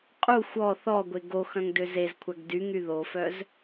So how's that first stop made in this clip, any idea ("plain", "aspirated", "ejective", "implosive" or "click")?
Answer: ejective